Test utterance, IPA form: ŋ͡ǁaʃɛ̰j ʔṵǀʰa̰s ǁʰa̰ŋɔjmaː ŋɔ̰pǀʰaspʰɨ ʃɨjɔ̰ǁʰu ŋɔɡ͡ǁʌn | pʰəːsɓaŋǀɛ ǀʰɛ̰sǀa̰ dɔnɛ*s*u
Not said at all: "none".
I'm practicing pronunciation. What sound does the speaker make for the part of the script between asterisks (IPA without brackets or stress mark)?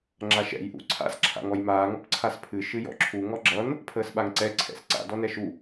ʃ